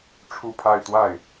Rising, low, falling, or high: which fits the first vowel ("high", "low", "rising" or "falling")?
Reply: falling